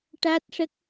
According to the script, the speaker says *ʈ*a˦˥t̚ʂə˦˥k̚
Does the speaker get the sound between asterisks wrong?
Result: no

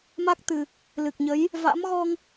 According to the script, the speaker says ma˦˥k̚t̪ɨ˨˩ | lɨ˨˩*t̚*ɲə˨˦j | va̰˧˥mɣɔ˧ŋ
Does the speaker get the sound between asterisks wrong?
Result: yes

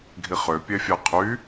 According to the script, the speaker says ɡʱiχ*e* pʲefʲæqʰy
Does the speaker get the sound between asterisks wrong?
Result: yes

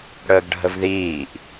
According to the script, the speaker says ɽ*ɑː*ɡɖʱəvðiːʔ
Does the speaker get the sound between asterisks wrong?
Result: yes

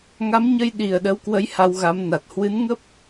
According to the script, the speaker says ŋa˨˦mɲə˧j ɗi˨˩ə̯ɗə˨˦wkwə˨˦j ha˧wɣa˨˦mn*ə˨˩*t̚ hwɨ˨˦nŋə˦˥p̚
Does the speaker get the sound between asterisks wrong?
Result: yes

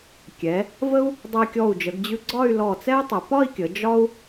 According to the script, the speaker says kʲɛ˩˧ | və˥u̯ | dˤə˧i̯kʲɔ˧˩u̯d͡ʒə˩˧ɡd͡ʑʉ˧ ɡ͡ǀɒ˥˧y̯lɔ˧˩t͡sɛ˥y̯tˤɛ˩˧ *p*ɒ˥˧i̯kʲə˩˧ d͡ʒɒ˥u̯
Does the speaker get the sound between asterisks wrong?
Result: no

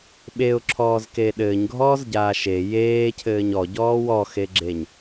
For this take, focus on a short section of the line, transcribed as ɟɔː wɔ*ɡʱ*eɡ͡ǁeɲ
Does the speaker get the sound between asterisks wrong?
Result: yes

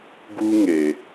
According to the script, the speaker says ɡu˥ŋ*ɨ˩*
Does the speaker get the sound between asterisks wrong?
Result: yes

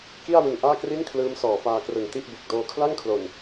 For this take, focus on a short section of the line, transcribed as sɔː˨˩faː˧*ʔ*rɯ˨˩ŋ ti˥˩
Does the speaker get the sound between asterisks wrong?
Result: yes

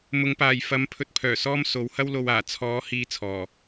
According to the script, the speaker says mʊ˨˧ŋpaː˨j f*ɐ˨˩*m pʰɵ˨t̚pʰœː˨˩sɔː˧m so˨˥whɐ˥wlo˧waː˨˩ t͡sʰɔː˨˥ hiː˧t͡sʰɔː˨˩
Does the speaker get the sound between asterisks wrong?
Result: yes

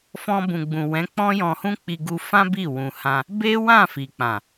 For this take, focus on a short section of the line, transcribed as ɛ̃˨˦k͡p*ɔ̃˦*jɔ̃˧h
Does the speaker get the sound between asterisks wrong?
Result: no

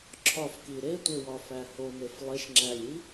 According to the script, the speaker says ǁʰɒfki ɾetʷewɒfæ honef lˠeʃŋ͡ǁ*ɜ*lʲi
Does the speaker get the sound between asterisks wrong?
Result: yes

